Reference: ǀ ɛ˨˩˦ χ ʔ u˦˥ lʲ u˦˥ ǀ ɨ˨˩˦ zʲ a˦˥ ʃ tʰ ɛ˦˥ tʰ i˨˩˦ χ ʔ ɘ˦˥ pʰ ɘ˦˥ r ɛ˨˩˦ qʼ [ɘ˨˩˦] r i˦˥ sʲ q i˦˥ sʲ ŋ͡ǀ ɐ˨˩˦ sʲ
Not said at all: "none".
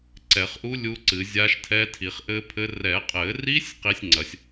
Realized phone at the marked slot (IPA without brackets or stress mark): ɘ˨˩˦